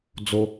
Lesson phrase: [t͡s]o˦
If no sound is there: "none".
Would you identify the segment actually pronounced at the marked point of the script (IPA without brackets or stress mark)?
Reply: d͡z